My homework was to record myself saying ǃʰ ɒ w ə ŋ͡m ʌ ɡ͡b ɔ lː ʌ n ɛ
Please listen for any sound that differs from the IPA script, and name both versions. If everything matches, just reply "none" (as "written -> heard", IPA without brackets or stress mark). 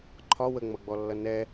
none